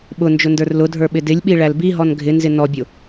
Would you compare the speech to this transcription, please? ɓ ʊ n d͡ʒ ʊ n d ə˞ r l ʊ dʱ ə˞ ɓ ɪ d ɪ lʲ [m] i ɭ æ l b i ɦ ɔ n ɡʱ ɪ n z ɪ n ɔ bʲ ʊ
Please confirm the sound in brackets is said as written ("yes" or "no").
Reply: no